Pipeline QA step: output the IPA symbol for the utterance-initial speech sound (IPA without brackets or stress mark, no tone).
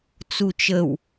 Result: t͡s